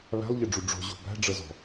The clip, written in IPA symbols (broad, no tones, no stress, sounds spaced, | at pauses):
β æ̤ lˠ ʎ ə ɖ͡ʐ u ɖ͡ʐ o̤ ʑ o̤ b æ̤ ɖ͡ʐ ɤ z ɔ̤